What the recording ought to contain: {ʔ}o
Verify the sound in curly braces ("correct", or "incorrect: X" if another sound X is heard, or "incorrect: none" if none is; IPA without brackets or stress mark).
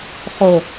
incorrect: χ